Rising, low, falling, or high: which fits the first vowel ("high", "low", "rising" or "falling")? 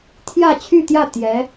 falling